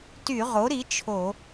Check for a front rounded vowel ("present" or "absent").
present